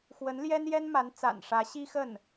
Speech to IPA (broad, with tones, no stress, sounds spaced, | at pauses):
x w ə˧˥ n l j ɛ˥ n j ɛ˥ n m a˧˥ n t͡s a̰˨˩ n ʂ ä˧˥ ɕ i˥ x ə˥˩ n